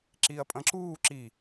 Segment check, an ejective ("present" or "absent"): present